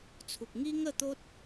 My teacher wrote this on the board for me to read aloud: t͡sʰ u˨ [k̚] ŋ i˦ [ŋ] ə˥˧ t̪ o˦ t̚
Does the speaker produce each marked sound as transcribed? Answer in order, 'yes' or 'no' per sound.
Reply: yes, yes

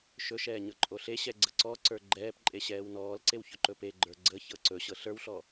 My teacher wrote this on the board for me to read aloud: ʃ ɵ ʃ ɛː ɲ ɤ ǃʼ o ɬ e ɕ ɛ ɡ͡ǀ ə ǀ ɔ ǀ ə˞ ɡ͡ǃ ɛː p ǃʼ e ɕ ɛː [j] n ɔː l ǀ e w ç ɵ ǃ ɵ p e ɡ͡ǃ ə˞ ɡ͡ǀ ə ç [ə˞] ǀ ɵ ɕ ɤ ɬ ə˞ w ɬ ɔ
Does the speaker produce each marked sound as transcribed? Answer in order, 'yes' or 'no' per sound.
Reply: no, no

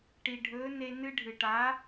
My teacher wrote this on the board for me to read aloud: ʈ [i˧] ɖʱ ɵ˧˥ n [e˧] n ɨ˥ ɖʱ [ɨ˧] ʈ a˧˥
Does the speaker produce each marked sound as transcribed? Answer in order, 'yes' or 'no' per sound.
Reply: yes, yes, yes

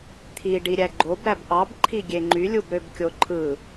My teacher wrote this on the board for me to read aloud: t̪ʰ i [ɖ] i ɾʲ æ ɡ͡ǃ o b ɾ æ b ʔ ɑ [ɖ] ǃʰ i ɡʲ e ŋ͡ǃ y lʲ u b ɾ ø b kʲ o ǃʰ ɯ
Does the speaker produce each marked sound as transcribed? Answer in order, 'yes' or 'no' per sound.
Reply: yes, no

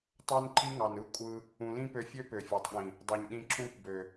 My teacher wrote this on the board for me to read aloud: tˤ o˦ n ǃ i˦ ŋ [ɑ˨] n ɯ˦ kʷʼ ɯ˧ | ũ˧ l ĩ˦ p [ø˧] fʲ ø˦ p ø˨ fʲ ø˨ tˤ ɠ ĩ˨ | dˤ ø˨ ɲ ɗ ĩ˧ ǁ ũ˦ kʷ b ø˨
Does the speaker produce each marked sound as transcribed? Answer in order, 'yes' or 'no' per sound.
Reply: yes, yes

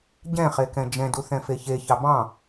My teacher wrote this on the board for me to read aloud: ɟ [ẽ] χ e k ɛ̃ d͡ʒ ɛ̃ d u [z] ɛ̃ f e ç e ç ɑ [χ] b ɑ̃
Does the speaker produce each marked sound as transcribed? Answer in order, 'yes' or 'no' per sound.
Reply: no, no, no

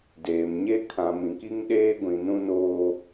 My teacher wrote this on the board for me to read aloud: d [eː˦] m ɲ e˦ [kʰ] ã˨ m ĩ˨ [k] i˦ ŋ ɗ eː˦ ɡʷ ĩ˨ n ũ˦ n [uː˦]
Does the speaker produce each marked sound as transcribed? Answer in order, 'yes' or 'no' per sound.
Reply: no, yes, yes, no

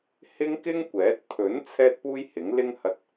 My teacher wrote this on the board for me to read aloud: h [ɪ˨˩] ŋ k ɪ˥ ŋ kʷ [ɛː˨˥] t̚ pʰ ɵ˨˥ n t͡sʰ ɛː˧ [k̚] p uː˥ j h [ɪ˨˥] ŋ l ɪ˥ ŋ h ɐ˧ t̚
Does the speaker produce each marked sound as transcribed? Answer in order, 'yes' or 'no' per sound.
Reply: no, yes, no, yes

